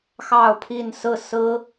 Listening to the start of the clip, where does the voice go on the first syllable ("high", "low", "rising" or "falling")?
falling